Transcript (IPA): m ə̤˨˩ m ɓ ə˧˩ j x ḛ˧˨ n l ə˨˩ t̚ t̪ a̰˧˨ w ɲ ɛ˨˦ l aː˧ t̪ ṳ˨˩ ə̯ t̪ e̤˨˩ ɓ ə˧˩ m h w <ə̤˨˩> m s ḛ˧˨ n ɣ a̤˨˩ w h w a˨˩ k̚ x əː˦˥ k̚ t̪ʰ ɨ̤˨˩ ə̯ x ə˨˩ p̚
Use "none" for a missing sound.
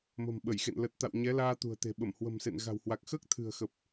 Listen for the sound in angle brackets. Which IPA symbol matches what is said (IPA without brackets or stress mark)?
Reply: ə̤˨˩